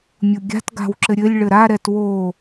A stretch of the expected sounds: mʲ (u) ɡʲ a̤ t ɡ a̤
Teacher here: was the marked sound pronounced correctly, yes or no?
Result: yes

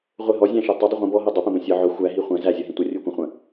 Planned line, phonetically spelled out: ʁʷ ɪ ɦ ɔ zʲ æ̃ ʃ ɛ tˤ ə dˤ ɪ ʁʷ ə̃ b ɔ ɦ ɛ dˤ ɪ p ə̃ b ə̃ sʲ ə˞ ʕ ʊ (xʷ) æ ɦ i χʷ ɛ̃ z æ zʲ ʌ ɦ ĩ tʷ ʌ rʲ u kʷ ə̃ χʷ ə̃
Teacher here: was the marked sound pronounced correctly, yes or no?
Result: yes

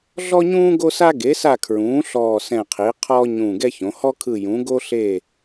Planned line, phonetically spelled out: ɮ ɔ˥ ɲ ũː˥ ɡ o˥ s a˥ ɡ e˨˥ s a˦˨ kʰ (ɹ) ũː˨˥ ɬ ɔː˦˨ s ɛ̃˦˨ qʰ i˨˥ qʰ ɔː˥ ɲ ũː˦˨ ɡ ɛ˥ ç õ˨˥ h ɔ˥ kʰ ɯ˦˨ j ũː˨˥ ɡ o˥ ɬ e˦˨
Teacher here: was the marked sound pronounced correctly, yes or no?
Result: yes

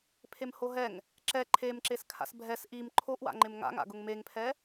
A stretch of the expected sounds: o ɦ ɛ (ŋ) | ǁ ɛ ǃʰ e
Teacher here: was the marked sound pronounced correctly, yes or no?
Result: yes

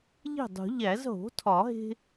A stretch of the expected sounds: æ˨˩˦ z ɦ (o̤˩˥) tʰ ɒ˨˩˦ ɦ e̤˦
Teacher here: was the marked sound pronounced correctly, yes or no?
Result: yes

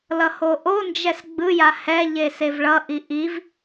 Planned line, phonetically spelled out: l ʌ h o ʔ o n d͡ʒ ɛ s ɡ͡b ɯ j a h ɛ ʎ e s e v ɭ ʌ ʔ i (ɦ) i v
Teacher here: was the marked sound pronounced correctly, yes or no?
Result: no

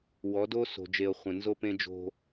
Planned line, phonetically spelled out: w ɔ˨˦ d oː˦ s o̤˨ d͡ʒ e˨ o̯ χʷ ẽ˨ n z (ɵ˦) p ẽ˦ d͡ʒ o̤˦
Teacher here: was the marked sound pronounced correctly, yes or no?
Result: no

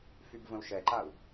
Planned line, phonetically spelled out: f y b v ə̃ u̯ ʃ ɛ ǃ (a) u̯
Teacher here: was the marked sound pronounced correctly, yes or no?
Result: yes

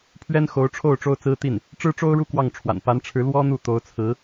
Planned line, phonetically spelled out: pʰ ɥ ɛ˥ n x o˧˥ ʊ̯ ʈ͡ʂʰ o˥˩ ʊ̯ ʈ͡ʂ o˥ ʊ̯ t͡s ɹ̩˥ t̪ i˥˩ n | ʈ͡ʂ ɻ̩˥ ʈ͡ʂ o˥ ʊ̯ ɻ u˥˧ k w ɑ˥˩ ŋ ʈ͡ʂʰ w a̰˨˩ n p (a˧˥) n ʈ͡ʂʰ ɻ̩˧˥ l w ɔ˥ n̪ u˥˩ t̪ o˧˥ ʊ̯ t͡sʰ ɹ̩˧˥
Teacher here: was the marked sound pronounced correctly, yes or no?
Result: yes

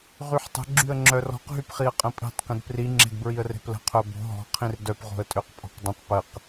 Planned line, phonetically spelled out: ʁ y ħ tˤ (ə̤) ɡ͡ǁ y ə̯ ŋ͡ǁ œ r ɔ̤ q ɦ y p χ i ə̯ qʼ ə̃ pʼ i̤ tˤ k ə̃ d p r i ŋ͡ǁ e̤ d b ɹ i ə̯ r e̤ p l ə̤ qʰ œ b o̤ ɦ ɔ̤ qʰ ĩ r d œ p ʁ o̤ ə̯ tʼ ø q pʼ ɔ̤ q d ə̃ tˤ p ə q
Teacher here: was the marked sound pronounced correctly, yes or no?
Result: yes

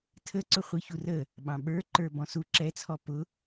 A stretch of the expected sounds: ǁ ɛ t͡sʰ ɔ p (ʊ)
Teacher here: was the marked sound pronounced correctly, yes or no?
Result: yes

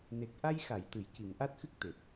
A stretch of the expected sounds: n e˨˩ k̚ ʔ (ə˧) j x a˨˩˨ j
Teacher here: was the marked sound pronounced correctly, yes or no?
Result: no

